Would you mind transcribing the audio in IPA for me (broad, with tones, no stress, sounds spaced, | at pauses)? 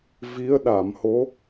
v i˧˥ ə̯ ɗ a˨˩˨ m h o˧˥